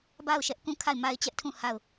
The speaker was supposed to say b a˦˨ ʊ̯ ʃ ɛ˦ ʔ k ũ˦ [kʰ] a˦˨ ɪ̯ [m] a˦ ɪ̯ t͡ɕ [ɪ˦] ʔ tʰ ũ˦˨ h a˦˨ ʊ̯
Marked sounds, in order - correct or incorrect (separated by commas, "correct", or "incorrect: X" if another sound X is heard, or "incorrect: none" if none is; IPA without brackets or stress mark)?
correct, correct, incorrect: ɛ˦